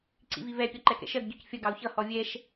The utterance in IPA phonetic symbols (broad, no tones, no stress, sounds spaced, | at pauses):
ǀ ḭ v i v ɛ pʲ ɒ ǃ ɛ k ɛ̰ ʃ ɜ ɡ ɟ ɔ c fʲ ʌ ɡ ɑ u̯ ç ʌ h ɔ vʲ ɛ ʃ